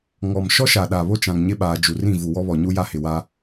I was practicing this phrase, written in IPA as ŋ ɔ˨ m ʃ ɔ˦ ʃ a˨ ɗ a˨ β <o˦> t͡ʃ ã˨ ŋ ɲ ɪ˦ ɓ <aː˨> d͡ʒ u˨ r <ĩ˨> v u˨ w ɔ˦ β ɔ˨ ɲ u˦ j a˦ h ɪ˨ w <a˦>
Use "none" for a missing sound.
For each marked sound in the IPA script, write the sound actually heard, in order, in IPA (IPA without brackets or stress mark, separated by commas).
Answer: o˦, aː˨, ĩ˦˨, a˦